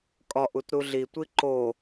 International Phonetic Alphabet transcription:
kʼɒʔ utɾuɮitʷi ǃo

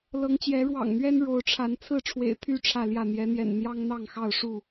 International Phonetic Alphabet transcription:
lɤ˨˦ŋt͡ɕjɛ˨˦ ɻwɑ̰˨˩ŋn̪ɥɛ˦n ɻo˨˦ʊ̯ʈ͡ʂʰa˨˦n t͡sʰɹ̩˥˨ʈ͡ʂʰwḛ˨˩ɪ̯ t̪ʰy˥˨ ʈ͡ʂʰä˥˨ljä˥˨ n̪jɛ˨˦n̪jɛ̰˨˩n n̪jɑ˦ŋn̪ɑ˥˨ŋxɑ˥˨ʊ̯ ʂu˥˨

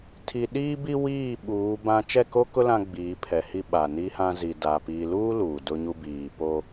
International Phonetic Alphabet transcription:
tʰi˨ɗiː˦bi˦ wiː˦˨ ɓuː˨˦bã˦ t͡ʃɛ˦˨ko˦kʊ˦ lã˦ɡ͡biː˨˦pʰɛ˨hi˦ ɓa˨ni˦hã˦ zi˨ da˨ piː˨luː˦ luː˨dʊ˦ɲu˦ biː˨ po˦

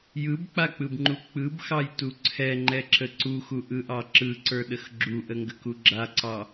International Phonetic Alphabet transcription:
jɯbk͡pak͡pɯbŋ͡ǃu k͡pɯbxɑjtu ǀʰɛŋ͡ǃɛǁə ǀuxuʔɯʔɑ ǁɯǀə˞ɗəx ɡ͡ǁuʔəŋɡəku ɡ͡ǁaǀɑ

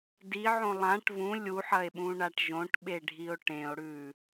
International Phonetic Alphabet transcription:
diʕõ lˠãʈ vũ lʲuħɐe̯ɓũɳaʈ ʒõʈɓeɖʱio̯ ʈẽo̯ɽʉ

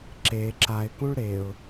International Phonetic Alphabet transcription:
ǁe ǁaɪ̯kũɭ ɾeʊ̯

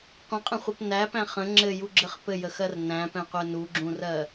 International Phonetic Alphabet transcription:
qʷə̃qʼə̃χʷɛp næpæ̃ χə̃ ŋ͡ǁɘjuɡ͡ǁɘχ pɘjəxɜr næ̃pɛ̃qʷɛ nuɡ͡ǁũrɜ

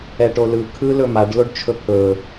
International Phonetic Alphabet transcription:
ɛʈolɯ kʰɯ lɵmaɖ loɖt͡ʃʰɵpʰɵ

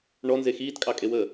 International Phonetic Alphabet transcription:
ɳɔnze xiːtkʼɑkʼewəː

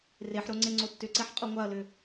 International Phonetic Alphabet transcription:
reħɾo ŋ͡ǀeŋ͡ǀotːʏǀɛħ qʼoŋʷaɐ̯lʏ

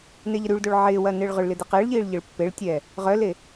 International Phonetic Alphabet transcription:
neʎəɾyɭdoɭ ʕɪː wɐnɪːɭʁʏɭlɪ deqɪːɭʎiːɭ ʎɪɭpːeɭtʲɛː | ʁœle

